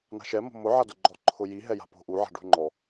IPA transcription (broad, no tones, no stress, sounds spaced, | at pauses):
n a̤ ʃ ɛ m o̤ m ʊ ʕ a d ʊ ɡ͡ǃ ɔ ǃʰ ʊ j i ɦ ɛ j a̤ p o̤ ʔ u ʕ a̤ ɖ ṳ ŋ͡ǃ ɔ